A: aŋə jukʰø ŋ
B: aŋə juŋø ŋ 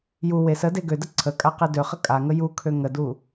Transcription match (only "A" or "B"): A